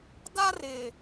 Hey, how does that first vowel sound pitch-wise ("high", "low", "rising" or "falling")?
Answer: high